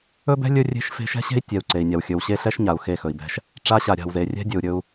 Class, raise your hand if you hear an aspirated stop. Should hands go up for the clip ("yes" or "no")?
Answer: no